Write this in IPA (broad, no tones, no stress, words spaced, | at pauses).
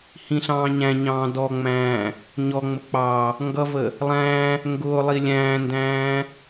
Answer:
hĩɬɑ̃ːɲæ̃ɲɑ̃ː dɔŋ͡mæ̃ː | ɲɔŋ͡mə k͡pɑ | ŋɡʌvə | lˠæ̃ | ŋɡʊːlˠi lʲæ̃ːndæ̃ː